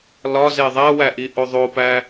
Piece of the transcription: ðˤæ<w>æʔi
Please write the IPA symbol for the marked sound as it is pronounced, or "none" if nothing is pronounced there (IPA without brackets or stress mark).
w